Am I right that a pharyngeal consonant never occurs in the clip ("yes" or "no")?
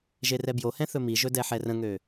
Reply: no